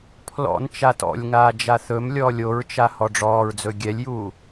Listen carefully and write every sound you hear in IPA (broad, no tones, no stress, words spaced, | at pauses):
pʰlɔ̰n t͡ʃatɔ̰lʲŋaː d͡ʒaθɵmlʲɔːlʲ oɹt͡ʃa hɔɖ͡ʐɔːɹd͡zɵ ɡʲɛlʲjuː